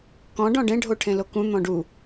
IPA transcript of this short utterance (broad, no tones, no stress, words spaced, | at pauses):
kɔ̃ ɖɔ̃ɖẽ ɖʱoʈʰẽlokũ n̪ɔ̃ɖu